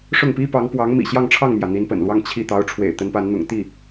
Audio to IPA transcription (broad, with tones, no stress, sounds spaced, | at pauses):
ʂ ʊ˥˩ ŋ p i˥ p ɑ˧˥ ŋ p w ɑ˧˥ ŋ m ḭ˨˩ ɕ j ɑ˥˧ ŋ ʈ͡ʂʰ ɑ˥˩ ŋ m j ä˩ n̪ i˧˥ n p ə̰˨˩ n l w ɑ˥˧ ŋ t͡ɕʰ i˥˩ t̪ ɑ˧˥ ʊ̯ ʈ͡ʂʰ w ḛ˨˩ ɪ̯ t̪ ə˧˥ n p a˧˥ n n̪ ʊ̰˨˩ ŋ t̪ i˥˩